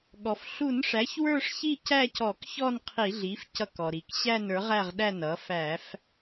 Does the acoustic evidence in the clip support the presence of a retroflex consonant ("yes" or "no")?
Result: yes